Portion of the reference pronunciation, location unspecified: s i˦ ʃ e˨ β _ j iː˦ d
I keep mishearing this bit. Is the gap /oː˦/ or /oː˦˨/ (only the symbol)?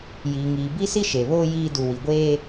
oː˦